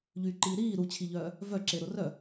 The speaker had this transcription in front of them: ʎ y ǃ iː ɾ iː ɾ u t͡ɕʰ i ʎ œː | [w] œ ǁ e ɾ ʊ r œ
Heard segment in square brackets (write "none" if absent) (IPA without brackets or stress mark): v